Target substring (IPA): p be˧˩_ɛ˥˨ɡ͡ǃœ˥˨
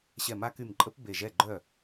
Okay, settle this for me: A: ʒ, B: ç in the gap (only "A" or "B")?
A